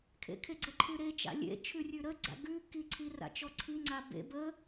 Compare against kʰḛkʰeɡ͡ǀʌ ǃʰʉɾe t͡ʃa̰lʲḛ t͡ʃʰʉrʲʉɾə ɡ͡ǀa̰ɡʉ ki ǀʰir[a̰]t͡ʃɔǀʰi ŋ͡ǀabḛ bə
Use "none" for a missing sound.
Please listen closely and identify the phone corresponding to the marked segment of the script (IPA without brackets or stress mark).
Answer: a̰